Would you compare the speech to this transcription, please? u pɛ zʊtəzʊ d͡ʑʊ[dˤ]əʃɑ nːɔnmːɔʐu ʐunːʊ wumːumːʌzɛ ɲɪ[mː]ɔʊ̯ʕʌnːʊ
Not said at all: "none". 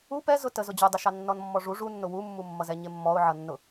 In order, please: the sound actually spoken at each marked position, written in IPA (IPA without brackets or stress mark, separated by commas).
dˤ, mː